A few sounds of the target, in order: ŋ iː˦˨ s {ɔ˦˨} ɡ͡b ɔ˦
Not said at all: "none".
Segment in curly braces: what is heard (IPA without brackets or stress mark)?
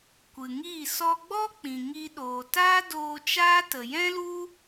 ɔ˧